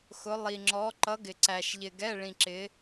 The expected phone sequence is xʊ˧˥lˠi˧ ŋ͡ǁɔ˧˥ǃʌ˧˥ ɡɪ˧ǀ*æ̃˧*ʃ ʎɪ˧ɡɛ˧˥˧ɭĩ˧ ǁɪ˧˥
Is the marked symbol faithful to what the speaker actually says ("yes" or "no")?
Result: no